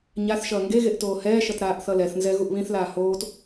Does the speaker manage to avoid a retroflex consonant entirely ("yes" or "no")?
yes